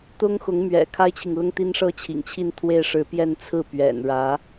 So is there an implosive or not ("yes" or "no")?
no